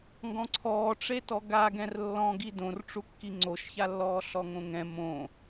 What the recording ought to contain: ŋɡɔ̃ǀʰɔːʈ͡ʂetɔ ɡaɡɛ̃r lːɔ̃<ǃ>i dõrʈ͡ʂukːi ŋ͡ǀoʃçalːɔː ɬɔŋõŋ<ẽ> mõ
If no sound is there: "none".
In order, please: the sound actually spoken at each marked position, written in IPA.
ɡ, ɛ̃

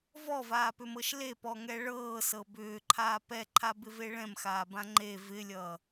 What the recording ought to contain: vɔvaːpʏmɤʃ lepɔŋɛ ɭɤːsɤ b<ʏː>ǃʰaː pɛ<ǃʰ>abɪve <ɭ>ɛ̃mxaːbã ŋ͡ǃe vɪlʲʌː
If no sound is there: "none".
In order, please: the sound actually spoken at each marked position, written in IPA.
ʏː, ǃʰ, ɭ

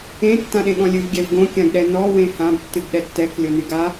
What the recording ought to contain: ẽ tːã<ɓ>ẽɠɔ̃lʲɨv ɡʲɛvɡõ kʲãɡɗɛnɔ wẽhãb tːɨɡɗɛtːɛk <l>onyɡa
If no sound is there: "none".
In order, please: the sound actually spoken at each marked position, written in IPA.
ɗ, lʲ

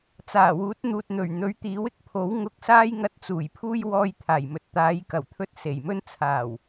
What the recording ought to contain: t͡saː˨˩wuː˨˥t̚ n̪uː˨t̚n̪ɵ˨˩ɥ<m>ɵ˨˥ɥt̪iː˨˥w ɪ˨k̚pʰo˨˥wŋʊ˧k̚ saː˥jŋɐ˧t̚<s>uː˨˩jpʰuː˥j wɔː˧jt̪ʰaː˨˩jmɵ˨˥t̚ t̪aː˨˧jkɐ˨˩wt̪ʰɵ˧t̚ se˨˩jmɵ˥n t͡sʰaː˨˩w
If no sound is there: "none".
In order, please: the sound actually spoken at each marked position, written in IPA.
n̪, t͡s

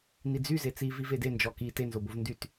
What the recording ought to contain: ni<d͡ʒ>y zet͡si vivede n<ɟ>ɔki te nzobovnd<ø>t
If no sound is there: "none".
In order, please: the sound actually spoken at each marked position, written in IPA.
d͡z, d͡ʒ, y

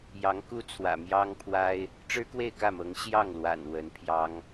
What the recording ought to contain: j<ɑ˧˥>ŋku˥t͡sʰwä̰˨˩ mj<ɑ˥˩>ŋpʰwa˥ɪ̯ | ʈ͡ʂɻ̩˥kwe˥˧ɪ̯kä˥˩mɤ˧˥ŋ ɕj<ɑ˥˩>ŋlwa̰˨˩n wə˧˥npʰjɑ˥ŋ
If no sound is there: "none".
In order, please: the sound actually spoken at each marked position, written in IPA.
ɑ˧˥, ɑ˥, ɑ˥˩

